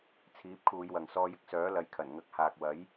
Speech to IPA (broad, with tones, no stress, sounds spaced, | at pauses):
t͡sʰ iː˨˥ p̚ kʰ uː˨˧ j w ɐ˨ ŋ s ɔː˧ j ɪ˥ k̚ s œː˨˥ l ɐ˨˥ j kʰ ɐ˨˩ n ŋ ɐ˧ k̚ h aː˨ k̚ w ɐ˨˥ j